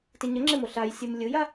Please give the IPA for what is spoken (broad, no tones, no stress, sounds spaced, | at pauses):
t ɪ ɲ ə ŋ͡ǁ ɪ m o ɬ a j sʲ ɯ m lʲ ɯ j a